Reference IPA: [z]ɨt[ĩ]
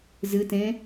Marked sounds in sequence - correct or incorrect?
correct, incorrect: ẽ

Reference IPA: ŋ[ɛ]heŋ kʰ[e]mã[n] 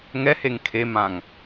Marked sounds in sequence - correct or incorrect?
correct, correct, incorrect: ŋ

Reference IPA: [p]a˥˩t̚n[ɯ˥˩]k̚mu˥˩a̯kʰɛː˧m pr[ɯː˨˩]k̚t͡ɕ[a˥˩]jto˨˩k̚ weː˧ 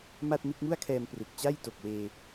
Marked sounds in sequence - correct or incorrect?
incorrect: m, correct, incorrect: ɯ˨˩, correct

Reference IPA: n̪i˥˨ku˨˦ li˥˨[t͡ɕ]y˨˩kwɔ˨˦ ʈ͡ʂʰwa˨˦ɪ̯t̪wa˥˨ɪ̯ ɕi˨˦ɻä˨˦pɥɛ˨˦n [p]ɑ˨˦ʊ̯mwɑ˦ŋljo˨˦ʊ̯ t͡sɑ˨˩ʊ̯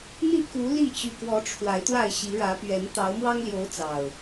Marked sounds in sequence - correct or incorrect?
correct, incorrect: t̪

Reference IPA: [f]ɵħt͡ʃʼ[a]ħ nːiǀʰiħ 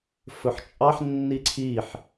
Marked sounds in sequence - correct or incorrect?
correct, incorrect: ɑ

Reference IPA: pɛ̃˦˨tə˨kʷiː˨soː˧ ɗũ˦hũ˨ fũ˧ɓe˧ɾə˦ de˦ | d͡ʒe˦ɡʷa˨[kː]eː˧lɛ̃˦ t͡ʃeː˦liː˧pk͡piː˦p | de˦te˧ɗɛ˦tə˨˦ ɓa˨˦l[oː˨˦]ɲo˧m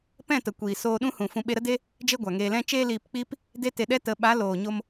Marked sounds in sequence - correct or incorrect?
incorrect: ŋ, incorrect: oː˨

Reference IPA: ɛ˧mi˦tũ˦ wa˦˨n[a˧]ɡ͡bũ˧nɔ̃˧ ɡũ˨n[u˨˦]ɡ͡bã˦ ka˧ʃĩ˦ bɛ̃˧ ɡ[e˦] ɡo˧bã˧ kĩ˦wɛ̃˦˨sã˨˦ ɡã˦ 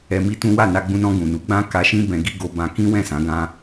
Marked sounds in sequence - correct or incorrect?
correct, correct, incorrect: i˦

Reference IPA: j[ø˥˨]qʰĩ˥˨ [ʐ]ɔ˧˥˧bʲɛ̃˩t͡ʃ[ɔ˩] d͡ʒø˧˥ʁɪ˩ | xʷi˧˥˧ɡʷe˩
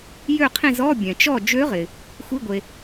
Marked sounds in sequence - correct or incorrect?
correct, incorrect: z, incorrect: ɔ˥˨

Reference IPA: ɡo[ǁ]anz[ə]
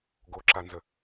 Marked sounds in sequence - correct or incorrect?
correct, correct

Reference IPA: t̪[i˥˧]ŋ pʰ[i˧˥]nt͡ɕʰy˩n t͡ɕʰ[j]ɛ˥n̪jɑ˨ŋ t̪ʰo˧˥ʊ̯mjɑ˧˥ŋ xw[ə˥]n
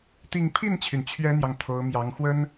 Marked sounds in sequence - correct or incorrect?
correct, incorrect: i˥˩, incorrect: ɥ, correct

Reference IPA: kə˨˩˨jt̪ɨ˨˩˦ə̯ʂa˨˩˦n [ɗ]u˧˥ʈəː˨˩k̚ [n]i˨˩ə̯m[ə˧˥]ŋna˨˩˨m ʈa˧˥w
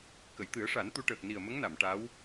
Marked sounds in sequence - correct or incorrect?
incorrect: t̪, correct, correct

